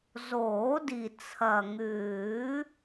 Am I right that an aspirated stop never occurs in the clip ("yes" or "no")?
no